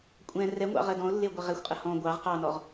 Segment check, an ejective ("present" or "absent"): present